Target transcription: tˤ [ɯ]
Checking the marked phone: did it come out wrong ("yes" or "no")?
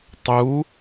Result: yes